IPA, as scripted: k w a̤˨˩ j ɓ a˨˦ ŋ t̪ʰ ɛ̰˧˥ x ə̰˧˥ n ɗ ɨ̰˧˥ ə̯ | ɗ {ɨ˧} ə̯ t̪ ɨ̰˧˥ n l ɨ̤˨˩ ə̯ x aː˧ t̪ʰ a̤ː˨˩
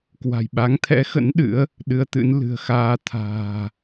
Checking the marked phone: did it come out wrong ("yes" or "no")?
no